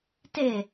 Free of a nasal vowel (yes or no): yes